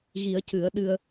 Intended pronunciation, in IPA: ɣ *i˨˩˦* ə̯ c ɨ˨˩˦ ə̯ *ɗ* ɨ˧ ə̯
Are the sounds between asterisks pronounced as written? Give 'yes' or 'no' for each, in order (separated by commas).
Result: yes, yes